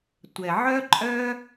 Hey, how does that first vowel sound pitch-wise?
low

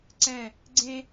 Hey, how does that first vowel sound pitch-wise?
falling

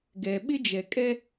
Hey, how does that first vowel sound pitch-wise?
low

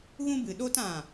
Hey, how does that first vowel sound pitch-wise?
high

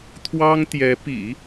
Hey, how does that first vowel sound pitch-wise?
high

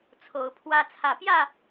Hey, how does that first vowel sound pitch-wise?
rising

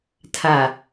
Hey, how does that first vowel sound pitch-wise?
low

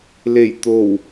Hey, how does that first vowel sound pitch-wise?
low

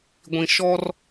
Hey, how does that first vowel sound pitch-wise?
low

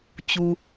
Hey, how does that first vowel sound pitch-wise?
low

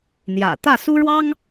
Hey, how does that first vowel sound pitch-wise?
low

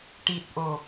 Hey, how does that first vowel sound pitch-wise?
low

